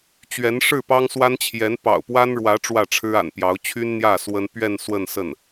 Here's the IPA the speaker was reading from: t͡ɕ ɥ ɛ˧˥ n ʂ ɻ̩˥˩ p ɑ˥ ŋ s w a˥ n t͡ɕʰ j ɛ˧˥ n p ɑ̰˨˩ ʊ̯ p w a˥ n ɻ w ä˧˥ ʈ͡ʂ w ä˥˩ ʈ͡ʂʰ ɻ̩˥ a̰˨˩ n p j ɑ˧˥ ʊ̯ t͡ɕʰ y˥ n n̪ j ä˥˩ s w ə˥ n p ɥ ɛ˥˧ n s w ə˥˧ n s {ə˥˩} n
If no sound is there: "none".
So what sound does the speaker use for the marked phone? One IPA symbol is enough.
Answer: ə˥˩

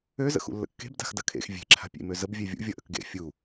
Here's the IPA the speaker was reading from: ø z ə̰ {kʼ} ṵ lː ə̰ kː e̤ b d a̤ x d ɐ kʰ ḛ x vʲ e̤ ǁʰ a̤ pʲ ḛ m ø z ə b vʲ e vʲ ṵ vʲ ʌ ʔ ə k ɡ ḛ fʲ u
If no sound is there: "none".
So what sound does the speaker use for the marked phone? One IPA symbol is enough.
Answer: x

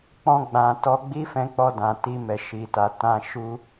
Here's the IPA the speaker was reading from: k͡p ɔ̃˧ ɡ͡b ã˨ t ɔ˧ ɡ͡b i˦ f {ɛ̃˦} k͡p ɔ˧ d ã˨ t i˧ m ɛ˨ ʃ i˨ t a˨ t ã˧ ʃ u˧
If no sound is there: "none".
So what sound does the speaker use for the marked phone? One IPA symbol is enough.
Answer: ɛ̃˧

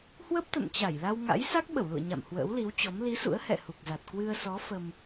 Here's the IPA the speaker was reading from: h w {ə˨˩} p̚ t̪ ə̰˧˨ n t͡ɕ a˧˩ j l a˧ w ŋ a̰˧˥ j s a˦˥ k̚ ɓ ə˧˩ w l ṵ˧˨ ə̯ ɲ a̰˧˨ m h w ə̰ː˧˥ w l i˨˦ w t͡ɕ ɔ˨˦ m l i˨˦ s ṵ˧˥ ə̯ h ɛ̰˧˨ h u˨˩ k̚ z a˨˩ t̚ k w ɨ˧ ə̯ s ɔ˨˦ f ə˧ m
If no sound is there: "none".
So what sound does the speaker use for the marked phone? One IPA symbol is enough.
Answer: ə˦˥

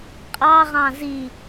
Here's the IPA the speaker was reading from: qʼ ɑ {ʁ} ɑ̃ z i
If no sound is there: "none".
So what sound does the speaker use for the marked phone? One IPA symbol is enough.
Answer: ʁ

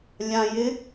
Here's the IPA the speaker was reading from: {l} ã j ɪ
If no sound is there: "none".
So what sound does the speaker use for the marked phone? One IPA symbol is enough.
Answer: lʲ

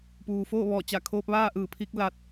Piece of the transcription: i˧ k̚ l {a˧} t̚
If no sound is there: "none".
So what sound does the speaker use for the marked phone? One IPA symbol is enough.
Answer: a˧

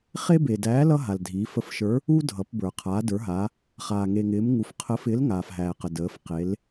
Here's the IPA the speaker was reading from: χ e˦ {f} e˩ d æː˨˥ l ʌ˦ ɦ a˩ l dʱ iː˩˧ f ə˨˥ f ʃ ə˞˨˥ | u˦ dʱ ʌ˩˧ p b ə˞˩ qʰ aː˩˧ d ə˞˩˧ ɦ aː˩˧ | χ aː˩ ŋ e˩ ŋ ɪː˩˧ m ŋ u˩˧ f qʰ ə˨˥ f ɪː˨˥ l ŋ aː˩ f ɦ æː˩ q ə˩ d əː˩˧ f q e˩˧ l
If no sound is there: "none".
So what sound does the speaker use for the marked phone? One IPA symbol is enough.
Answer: b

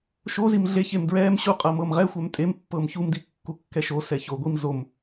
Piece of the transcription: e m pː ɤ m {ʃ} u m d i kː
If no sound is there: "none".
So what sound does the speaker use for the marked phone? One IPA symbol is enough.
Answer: ç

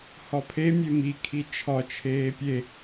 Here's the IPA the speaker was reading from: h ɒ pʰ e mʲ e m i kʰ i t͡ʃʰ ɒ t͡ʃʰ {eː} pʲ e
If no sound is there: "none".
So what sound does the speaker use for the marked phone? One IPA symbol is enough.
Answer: eː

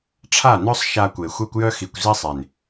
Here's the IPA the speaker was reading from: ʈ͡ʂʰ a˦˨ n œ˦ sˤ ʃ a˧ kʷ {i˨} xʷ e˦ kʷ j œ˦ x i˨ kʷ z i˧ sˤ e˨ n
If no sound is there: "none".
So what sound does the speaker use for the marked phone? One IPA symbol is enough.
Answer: e˨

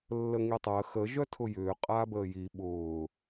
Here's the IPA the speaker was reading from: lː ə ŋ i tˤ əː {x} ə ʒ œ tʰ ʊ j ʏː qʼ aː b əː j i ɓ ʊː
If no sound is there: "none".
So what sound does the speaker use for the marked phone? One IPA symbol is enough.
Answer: x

